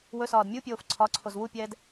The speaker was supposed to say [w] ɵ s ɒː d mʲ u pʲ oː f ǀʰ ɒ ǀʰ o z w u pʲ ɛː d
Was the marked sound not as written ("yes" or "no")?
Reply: no